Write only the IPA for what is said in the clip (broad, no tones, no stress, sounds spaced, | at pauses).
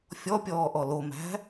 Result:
fʲ ɔ pʲ ɔː ʔ ɔ l o m æ̤